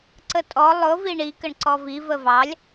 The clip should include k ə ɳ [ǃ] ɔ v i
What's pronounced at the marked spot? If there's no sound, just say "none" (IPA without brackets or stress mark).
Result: ǀ